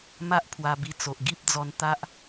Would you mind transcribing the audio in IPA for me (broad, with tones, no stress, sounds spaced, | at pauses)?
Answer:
m a˦ ʔ pʰ w a˧ b i˧ t͡s o˨ ʔ ɡ i˦ p̚ d͡z ɔ˧ n t̪ a˦ ʔ